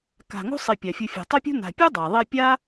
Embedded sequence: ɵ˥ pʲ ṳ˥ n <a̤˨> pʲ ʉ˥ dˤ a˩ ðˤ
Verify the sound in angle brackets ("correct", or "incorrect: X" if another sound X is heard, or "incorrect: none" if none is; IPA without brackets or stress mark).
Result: correct